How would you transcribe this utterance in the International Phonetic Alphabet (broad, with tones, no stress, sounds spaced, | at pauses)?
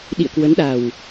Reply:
ɗ ḭ˧˨ ə̯ k w ə˨˦ n ɗ a˨˩ w